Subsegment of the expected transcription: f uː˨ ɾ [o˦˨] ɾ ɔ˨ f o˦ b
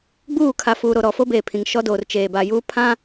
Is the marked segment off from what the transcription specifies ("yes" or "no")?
yes